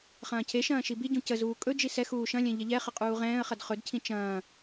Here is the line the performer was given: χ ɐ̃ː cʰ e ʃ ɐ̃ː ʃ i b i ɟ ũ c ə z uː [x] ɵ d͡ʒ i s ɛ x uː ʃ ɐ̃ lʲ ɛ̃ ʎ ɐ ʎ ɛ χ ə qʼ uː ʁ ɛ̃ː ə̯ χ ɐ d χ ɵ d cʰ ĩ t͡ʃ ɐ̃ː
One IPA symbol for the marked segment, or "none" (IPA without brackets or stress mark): kʼ